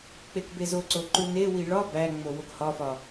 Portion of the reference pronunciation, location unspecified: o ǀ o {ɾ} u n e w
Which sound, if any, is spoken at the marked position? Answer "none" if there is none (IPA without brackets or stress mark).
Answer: ǃ